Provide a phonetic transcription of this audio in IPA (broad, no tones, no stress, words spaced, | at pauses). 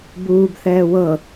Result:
buːbθɛː wɤ